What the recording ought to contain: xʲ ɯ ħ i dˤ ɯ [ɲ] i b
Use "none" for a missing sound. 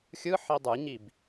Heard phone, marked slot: ɲ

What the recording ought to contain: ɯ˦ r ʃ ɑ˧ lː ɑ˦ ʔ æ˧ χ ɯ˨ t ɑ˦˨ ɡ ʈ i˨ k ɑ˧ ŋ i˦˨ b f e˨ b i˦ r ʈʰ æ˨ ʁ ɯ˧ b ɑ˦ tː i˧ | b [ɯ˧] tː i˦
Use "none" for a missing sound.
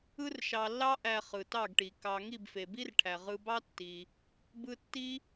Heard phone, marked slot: ɯ˦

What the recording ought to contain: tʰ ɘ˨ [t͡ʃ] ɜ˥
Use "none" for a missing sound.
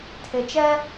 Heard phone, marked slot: t͡ʃ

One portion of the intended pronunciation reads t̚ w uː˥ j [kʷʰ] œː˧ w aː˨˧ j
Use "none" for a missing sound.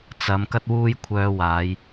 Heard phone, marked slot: kʷʰ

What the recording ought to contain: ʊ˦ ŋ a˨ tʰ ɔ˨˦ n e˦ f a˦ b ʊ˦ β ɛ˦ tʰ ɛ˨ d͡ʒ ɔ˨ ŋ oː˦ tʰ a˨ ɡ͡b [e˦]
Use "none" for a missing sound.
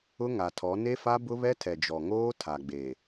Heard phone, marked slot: e˨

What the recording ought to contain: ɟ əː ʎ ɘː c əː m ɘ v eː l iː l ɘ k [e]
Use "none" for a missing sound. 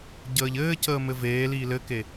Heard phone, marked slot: e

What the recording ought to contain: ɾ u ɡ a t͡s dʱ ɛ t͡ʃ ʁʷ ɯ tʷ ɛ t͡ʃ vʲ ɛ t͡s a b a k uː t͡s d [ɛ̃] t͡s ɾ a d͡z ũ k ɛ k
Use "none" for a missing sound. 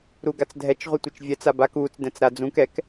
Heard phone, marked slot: ɛ̃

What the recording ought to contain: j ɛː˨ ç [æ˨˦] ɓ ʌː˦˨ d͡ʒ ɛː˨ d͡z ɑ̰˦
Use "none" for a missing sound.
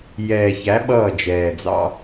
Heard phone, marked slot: æ˨˦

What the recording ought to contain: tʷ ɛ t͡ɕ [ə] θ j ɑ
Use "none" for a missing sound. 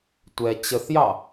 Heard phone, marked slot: ə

